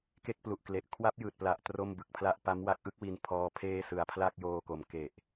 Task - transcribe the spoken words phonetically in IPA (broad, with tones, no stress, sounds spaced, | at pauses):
k e˥˩ k̚ p l u˨˩ ʔ k l e˨˩ ʔ kʰ w a˦˥ p̚ j ɯː˨˩ t̚ p l a˨˩ ʔ t r o˥˩ m b ɯ˨˩ k̚ pʰ l a˥˩ ʔ p a˦˥ m w a˦˥ k̚ ʔ ɯ˦˥ k̚ w i˧ n pʰ ɔː˦˥ pʰ eː˥˩ s ɯ˨˩ a̯ pʰ l a˥˩ k̚ j oː˧ k o˩˦ m k e˨˩ ʔ